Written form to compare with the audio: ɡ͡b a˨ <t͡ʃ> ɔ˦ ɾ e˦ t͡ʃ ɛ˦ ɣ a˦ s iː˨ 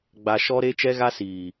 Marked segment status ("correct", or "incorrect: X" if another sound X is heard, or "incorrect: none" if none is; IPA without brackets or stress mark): incorrect: ʃ